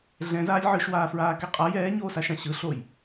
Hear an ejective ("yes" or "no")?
yes